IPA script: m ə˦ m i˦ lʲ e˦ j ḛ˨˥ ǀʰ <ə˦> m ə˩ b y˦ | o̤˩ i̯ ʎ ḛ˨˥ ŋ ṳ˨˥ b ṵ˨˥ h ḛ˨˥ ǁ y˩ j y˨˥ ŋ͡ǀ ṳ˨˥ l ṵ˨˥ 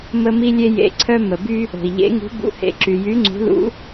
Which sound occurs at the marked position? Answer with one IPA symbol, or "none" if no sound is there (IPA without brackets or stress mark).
œ˦